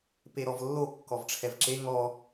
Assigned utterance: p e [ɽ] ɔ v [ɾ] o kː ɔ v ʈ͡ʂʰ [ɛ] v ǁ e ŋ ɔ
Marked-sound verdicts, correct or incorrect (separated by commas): incorrect, incorrect, correct